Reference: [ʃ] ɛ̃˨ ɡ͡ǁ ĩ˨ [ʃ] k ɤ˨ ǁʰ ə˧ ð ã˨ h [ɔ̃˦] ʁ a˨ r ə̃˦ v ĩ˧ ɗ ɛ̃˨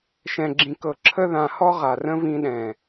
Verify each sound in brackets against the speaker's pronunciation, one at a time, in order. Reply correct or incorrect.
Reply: correct, incorrect, incorrect

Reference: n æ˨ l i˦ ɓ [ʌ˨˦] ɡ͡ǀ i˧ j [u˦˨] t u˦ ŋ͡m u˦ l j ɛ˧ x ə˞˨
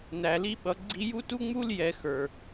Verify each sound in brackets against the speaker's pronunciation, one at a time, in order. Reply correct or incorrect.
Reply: correct, incorrect

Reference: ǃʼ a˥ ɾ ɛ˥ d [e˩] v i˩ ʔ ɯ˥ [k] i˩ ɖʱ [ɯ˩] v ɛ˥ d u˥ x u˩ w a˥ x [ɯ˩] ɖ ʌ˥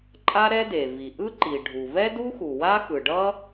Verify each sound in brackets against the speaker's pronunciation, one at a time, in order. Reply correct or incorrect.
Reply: correct, incorrect, incorrect, correct

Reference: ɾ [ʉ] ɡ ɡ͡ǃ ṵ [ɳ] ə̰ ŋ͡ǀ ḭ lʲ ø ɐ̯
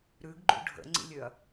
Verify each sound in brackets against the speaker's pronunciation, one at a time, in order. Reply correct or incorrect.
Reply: correct, incorrect

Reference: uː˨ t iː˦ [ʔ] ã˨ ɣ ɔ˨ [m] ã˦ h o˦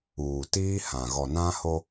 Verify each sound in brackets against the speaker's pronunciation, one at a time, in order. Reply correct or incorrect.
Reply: incorrect, incorrect

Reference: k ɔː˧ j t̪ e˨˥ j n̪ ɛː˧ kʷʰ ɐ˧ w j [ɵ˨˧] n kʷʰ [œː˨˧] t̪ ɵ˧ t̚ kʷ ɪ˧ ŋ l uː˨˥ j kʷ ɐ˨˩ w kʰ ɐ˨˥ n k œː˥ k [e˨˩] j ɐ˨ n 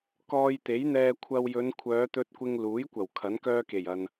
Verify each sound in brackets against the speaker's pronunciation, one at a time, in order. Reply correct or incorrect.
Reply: correct, correct, correct

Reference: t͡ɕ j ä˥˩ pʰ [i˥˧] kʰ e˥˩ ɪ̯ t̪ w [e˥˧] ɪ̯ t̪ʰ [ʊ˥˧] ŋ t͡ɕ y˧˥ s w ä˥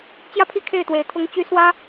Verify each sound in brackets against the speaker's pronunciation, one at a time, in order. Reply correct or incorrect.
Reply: incorrect, incorrect, incorrect

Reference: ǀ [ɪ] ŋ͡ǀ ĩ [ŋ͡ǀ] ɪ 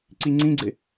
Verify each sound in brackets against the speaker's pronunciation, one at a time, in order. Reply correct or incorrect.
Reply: incorrect, incorrect

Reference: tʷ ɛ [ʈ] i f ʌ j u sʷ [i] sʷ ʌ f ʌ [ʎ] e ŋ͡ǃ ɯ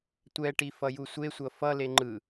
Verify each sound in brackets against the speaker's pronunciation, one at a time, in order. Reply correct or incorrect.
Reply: correct, incorrect, incorrect

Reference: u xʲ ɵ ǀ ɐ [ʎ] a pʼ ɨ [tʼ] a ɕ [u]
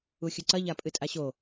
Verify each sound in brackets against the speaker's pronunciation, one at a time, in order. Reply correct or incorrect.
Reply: correct, correct, incorrect

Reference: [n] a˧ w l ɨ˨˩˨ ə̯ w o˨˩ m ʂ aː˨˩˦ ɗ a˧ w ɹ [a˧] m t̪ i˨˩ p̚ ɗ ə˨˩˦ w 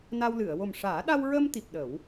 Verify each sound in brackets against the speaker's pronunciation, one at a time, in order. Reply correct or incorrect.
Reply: correct, incorrect

